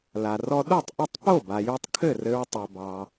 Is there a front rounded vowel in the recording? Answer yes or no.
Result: yes